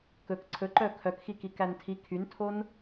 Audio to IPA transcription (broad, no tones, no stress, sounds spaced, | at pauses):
k ɵ k ǀʰ ɵ ǃ œ kʰ œ k x i k i k æ n tʰ i kʰ y n tʰ o n